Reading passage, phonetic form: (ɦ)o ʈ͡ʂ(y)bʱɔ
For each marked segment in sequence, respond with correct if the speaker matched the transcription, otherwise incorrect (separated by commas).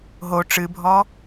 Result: correct, incorrect